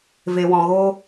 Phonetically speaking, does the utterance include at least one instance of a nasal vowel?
yes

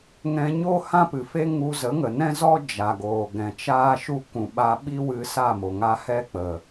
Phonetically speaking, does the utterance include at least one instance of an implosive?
yes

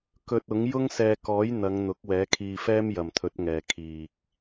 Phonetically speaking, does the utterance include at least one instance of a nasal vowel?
no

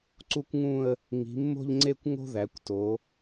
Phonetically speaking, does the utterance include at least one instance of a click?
yes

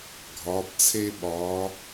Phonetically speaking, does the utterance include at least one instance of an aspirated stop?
yes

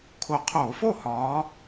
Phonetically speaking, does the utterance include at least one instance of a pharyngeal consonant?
no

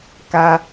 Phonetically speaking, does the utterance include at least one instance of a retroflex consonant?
no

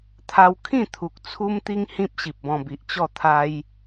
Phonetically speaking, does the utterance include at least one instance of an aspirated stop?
yes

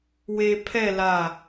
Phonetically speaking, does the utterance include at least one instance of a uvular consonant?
no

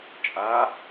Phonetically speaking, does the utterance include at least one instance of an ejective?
yes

